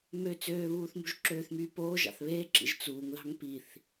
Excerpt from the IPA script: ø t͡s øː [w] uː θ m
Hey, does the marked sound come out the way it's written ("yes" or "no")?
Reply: no